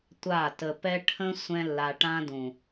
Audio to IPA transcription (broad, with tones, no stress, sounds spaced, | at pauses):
tʷ a˦˨ t ə˧ p ɛ˦ ʈʰ ə̃˦ sʷ ɛ̃˦ lː a˧ ʈ ã˦ d ũ˨